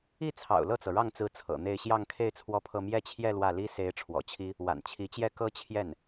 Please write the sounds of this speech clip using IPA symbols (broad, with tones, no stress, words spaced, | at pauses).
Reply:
i˥˩t͡sʰɑ̰˨˩ʊ̯ lɤ˥˩t͡sɤ˩ɻɑ˥˩ŋt͡sɹ̩˧˥ t͡sʰɤ̰˨˩n̪e˥˧ɪ̯ ɕjɑ˥˧ŋkʰe˥˧ɪ̯ t͡sʰwɔ˥˧pʰɤ˥˧ mjɛ˥˧t͡ɕʰjɛ˥˧ lwä˥˩li˥ se˧˥ɪ̯ ʈ͡ʂʰwɔ̰˨˩t͡ɕʰi˥ | wa̰˨˩nt͡ɕʰi˧˥t͡ɕjɛ˥ kɤ˥t͡ɕʰjɛ˥˩n